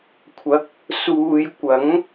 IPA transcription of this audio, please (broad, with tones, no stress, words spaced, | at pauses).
kʷʰɐ˨˥k̚ | suː˨j kʷɐ˨˥ŋ